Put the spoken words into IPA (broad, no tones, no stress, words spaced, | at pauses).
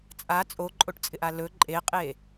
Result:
t͡sʼa t͡sʼoǃʼoʈt͡sʼɪʔa lɵ ǃʼeqʼe